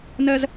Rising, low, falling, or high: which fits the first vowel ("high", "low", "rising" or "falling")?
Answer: high